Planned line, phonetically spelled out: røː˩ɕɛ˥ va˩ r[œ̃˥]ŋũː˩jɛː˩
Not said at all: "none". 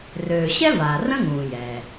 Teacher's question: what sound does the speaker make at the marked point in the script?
ə̃˥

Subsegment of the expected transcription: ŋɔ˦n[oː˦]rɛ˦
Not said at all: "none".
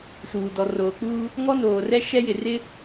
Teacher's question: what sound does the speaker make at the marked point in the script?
oː˨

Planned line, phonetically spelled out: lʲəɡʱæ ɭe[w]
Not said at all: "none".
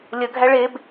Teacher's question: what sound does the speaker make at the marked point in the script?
b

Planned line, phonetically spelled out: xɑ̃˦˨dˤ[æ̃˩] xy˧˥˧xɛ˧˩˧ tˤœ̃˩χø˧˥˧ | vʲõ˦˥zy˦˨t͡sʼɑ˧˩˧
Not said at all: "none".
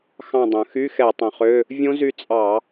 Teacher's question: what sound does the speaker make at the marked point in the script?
œ̃˩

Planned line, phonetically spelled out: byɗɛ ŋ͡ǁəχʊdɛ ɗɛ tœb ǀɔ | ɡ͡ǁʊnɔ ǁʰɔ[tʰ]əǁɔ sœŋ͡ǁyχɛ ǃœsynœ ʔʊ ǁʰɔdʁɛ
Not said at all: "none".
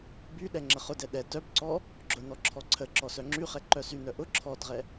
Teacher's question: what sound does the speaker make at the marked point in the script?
ǀʰ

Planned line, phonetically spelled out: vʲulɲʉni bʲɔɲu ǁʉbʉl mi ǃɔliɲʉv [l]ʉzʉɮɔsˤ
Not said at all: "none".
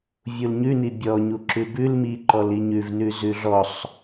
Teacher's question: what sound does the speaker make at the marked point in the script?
n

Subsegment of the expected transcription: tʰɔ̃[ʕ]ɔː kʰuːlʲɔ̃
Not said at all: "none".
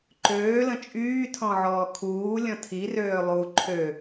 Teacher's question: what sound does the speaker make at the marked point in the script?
ʕ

